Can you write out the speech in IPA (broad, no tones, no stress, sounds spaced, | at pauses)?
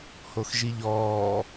h o x ʒ i ʎ ɔː